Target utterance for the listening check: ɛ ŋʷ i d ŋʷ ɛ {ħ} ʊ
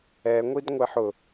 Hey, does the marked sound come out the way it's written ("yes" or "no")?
yes